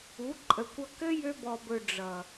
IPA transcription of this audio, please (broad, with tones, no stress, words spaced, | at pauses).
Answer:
u˨˦ǃʼə˨kʷʌ˧ kɘ˦jø˧bɔ˨bɵ˨ ɖ͡ʐʌ˨